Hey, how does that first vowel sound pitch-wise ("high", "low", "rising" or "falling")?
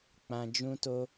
low